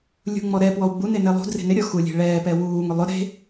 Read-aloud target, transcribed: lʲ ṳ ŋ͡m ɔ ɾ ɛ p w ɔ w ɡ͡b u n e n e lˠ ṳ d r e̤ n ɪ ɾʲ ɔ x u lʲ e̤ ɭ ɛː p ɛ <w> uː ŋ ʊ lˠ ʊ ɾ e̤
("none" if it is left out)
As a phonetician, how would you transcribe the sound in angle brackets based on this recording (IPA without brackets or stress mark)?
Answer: w